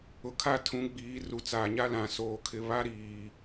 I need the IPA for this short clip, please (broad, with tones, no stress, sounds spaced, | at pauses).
ʊ˨ kʰ a˦˨ tʰ ũ˨˦ ɡ͡b iː˨˦ r u˨ t͡s aː˨ ɲ a˦ l ã˨ s oː˨ kʰ ɪ˨ β a˦ ɾ iː˨